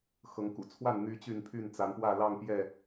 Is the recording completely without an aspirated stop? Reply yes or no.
no